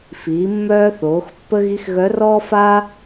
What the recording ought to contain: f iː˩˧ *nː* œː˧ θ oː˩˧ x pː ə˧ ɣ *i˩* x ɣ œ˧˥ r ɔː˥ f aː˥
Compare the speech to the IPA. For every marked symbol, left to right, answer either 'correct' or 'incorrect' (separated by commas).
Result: incorrect, incorrect